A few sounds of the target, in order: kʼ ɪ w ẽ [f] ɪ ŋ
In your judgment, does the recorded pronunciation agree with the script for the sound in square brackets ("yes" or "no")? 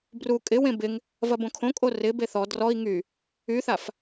no